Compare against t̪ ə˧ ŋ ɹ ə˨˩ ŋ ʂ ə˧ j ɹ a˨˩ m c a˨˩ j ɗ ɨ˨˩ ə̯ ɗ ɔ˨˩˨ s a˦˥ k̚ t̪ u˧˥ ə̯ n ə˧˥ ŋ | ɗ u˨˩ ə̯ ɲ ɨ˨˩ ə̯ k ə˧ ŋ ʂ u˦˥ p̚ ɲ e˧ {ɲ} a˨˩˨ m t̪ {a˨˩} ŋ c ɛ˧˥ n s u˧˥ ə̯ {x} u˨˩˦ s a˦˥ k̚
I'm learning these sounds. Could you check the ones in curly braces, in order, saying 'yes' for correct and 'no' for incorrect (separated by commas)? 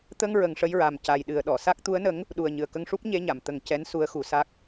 yes, no, yes